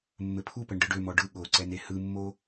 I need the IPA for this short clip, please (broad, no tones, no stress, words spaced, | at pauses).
mːɘpʰupɘɳ ɖɯɖømɔ ɖɯ ɠoǀɛn ehɯmːo